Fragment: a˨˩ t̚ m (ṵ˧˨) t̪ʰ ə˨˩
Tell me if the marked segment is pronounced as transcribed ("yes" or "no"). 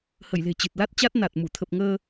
no